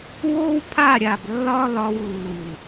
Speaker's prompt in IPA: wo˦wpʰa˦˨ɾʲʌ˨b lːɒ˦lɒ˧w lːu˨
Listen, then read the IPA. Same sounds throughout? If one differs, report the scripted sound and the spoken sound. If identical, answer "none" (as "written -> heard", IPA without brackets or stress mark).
ʌ˨ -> a˨